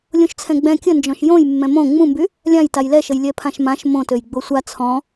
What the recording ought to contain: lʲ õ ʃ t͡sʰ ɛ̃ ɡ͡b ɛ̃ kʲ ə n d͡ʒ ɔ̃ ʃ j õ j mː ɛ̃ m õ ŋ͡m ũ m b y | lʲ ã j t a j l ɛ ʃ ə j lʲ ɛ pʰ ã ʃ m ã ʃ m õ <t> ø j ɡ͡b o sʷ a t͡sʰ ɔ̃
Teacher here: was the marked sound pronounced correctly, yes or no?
yes